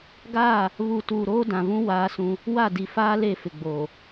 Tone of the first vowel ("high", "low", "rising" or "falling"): falling